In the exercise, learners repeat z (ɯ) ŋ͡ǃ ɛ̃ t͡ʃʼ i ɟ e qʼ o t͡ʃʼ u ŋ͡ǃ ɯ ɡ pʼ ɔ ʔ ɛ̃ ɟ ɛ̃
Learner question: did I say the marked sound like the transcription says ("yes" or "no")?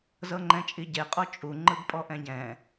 no